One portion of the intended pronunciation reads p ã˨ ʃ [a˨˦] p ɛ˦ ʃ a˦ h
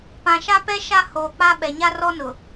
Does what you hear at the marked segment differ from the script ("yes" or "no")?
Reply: yes